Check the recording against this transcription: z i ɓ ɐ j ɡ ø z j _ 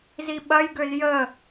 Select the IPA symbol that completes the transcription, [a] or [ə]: ə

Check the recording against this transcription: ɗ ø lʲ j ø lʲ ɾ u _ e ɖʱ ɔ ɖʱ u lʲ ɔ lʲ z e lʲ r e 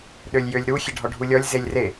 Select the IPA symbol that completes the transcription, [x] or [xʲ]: xʲ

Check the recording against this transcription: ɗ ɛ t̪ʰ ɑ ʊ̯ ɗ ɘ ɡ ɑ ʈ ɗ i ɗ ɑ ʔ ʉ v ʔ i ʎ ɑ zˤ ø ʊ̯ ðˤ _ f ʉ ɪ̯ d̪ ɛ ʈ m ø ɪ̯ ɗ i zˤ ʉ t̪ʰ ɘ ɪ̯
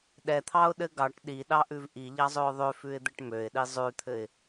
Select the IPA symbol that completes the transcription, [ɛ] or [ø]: ø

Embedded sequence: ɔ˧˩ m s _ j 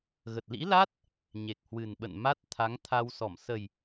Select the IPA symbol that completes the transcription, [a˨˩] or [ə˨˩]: ə˨˩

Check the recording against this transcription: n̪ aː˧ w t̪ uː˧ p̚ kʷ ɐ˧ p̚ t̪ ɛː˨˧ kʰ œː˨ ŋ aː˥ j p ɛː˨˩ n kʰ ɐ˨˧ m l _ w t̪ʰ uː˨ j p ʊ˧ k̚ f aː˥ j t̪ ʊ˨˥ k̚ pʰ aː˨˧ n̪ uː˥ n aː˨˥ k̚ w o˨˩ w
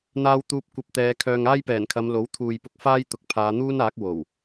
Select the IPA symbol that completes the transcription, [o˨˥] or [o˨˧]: o˨˥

